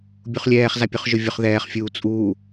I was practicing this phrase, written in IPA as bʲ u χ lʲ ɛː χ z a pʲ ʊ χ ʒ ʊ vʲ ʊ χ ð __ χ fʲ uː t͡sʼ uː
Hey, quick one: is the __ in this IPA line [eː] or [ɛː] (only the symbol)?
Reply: ɛː